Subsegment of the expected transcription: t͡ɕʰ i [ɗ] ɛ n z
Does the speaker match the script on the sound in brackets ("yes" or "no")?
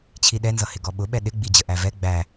yes